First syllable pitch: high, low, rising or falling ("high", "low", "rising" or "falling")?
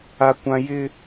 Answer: high